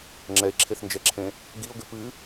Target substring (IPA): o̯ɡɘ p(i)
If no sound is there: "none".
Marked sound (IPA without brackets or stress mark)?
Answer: ɨ